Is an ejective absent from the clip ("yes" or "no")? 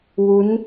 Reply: yes